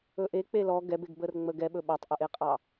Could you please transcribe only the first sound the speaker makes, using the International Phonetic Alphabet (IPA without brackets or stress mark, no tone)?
ɵ